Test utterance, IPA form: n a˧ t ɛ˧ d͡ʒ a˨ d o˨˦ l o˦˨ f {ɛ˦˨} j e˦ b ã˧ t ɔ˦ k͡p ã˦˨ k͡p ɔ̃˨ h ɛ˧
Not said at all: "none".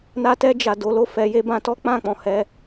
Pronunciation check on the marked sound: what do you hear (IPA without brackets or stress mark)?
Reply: ɛ˨˦